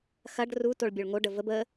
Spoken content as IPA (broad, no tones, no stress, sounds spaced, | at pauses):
x ɐ ɖ r u t o ɭ bʲ o ɭ ŋ o ɖ ə v ə b ə